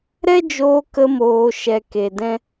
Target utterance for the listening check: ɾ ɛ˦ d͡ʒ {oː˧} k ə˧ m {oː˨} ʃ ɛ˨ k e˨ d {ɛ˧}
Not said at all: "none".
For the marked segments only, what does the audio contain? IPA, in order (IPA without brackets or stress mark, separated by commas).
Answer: oː˧, oː˨, ɛ̃˧